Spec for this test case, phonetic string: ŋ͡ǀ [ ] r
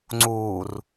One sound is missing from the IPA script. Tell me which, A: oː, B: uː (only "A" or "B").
B